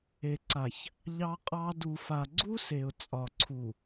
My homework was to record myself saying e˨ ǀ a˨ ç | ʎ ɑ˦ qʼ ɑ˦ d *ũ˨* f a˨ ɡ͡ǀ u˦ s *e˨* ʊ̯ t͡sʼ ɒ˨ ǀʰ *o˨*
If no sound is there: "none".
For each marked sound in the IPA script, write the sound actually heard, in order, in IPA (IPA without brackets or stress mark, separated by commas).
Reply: u˨, e˨, u˨